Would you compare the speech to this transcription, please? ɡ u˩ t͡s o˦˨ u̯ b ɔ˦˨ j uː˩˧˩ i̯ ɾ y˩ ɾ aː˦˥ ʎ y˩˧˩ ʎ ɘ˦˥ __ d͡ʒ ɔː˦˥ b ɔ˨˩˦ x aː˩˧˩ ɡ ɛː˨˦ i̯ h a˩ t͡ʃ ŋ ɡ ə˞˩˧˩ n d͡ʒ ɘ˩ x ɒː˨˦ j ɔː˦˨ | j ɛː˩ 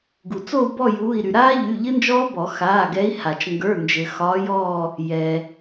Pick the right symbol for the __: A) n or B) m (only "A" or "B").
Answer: A